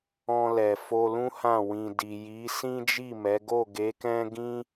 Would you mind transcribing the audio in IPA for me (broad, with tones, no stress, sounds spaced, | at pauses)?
ɔ̃˧ l ɛ˨ f o˧ l ũ˦ h ã˦˨ w ĩ˨ d i˨ j i˨˦ s ĩ˦ d͡ʒ i˦˨ m ɛ˨˦ ɡ o˦˨ ɡ e˨˦ k ɛ̃˦ ɡ ĩ˦